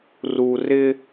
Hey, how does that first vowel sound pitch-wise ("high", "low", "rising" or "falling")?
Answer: low